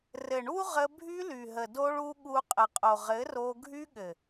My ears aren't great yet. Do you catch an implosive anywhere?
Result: yes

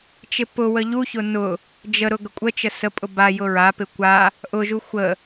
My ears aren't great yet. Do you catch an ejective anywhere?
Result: yes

